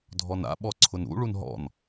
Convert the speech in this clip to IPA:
dʱ ɔ n a̰ ɓ ɔ ǀʰ ʊ n ṵ ɭ u n ɦ ɔ̰ n

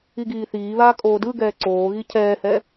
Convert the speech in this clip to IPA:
i ɡ iː θ iː β aː kʼ oː d ɯ ɡ ɛː ǀ oː ɣ i cʰ ɛː h ɛ

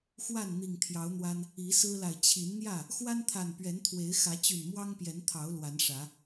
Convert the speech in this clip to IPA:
x w a˥˨ n n̪ i˨˩ ŋ t̪ʰ j ɑ˨˦ ʊ̯ n̪ w a˦ n | i˨˦ s ɹ̩˦ l a˨ ɪ̯ t͡ɕʰ i˨˦ n n̪ j ä˥˨ | x w a˦ n t̪ʰ a˨˩ n p ɥ ɛ˨˦ n t̪ʰ w e˨˦ ɪ̯ x ä˨˦ t͡ɕ y˨˩ n m w ɑ˦ ŋ p j ɛ˨˦ n t̪ʰ ɑ˨˦ ʊ̯ l w a˨˦ n ʂ ä˨˦

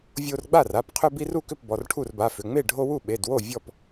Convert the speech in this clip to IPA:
vʲ o˦ r ɡ͡b a˥˨ r a˩˧˩ p qʰ ʏ˦ b i˦ r u˥˨ k ʏ˥˨ p b ɔ˩˧˩ r ʈʰ u˥˨ r b a˩˧˩ f ʏ˩˧˩ ŋ͡m e˥˨ ɖʱ o˦ w u˥˨ ɓ e˩˧˩ d w o˥˨ vʲ ɔ˥˨ p

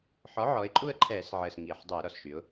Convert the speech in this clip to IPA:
ħ ɔ˩˥ ʕ ɔ˩˧ ɪ̯ ǃʼ u˦˨ ə̯ ǃʰ ɛː˧˩˧ s ʕ əː˨˩ s ŋ iː˨˩ ħ dˤ ø˧˩˧ ɾ ɔ˨˩ s ʃ y˩˧ ʊ̯

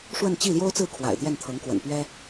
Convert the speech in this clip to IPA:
ʂ w ə˥˧ n t͡ɕ i˥˩ l j o˥ ʊ̯ t͡s ɹ̩˥˩ kʰ w a̰˨˩ ɪ̯ t̪ j ɛ˥˩ n t̪ʰ ɤ˧˥ ŋ k w ə̰˨˩ n p ɥ ɛ˥

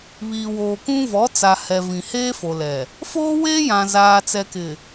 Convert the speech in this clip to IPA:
β iː˨ w oː˨ k ũ˦ v ɔ˨˦ t͡s a˨ h ɛ˨ v ĩ˨ h eː˦ f o˨ l ɛ˨ | f oː˦ w eː˦ j ã˨ z aː˨ t͡s ɛ˨ k ɪ˨

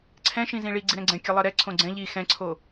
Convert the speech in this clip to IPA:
ǀʰ ɛ̃ ʃ ĩ z ĩ ɭ i ɡ͡ǀ i ɾ ɛ̃ ɡ͡ǀ ɛ̃ kʲ ɜ lˠ ɜ ɾ ɛ ǀʰ õ ɡ͡ǀ ɛ̃ ʎ i x ɛ̃ ǀʰ o

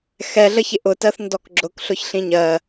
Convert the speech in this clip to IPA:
x ɛ ɮ ə ç ɪ ʔ ʊ t ɜ θ n d ɔ k ɡ͡ǁ ʊ k ɬ ʊ ç ɬ ĩ ɲ ɜ

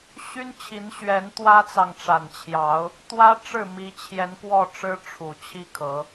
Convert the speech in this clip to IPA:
ɕ y˦ n t͡ɕʰ i˨˦ n ɕ ɥ ɛ˨˦ n t̪ w ä˦ t͡s ɑ˨ ŋ ʈ͡ʂ a˨˩ n t͡ɕʰ j ɑ˨˦ ʊ̯ | t̪ w ä˦ ʈ͡ʂ ɻ̩˥˨ m i˨˦ t͡ɕʰ j ɛ˨˦ n k w ɔ˥˨ ʈ͡ʂ ɻ̩˦ ʈ͡ʂʰ u˨˩ t͡ɕʰ i˦ kʰ ɤ˨˦

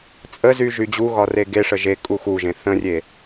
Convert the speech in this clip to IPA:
t͡sʼ ə z y ʒ y d͡ʑ u ɣ ɒ r e ɡ e ʂ ə ʒ e kʼ u x u ʒ ẽ θ ə̃ rʲ e

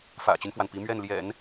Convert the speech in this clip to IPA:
f ä̰˨˩ t͡ɕ y˦ n f w a˩ n p i˧˥ m ɥ ɛ˥˩ n l j ɛ̰˨˩˦ n

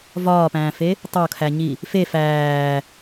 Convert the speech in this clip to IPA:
v ɒː p æ̃ː f e | tˤ o kʰ æ ɲ i | f e f æː

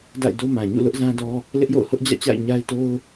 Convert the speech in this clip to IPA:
d a̰˦˨ ɪ̯ d o˦ m ã˨ ɲ ṵ˦˨ l ʊ˦ ʔ z ã˦ d ɔ˦ | l ɪ˦ ʔ j o̰˦˨ ʊ̯ h ʊ˦ ʔ d͡ʑ ä̰˦˨ t͡ɕ a̰˦˨ ɪ̯ ɲ a˦ ɪ̯ t o˦ ʊ̯

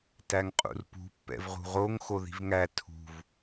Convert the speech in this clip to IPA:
t æ ŋ qʼ ṵ r p ṳ pː ɛ̰ v ʁ ṳ ʁ o ŋ x o ð i̤ v ŋ æ tʰ ṳ v

